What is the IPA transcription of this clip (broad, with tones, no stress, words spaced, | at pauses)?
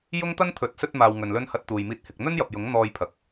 jʊ˥ŋt̪ɐ˥nt̪ʰɵ˨˥t̚ sɵ˧t̚maː˨w ŋɵ˨nlɵ˥n hɐ˧t̚t̪uː˨jmiː˧t̚ hɪ˨k̚n̪ɵ˥njɐ˨p̚jʊ˨˥ŋ n̪ɔː˧jpʰɐ˨˥k̚